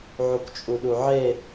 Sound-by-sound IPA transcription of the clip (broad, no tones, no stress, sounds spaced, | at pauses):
ʕ u k t͡ʃʼ u ɗ u ʕ e